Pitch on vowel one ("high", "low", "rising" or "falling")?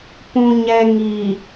low